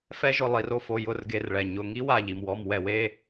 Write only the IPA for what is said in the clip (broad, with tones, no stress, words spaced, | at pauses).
fɛ˦ʒʊ˧˩ lˠi˧˩˧ro˦fo˩˧˩ jʊ˧˩˧rɡe˩˧˩rɭɛ˩ ɲʊ˩˧˩ŋi˦wa˧˩ ʎi˩mwɔ˩˧˩mwɛ˧˩˧w e˩˧˩